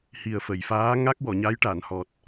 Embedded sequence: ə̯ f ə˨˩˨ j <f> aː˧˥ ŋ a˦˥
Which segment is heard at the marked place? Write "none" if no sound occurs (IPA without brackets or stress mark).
f